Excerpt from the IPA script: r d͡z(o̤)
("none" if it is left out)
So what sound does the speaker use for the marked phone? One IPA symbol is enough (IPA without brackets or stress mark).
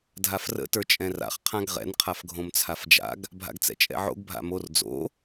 o̰